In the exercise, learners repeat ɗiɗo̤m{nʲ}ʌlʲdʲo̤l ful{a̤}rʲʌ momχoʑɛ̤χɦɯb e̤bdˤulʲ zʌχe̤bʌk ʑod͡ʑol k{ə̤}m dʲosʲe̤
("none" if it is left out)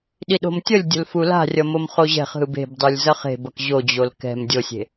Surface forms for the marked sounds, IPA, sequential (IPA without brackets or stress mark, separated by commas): tʲ, a̤, ɛ̤